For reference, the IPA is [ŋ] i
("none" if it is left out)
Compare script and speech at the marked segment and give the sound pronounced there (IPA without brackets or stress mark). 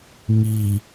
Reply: ŋ